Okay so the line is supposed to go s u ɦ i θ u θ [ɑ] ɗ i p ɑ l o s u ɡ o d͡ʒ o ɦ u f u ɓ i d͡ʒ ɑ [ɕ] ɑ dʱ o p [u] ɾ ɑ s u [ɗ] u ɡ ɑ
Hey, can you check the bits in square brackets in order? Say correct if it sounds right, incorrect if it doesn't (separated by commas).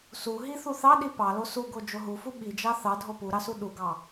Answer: correct, incorrect, correct, correct